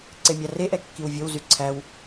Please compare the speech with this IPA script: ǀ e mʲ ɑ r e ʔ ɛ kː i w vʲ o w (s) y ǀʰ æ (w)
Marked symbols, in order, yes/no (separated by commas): no, yes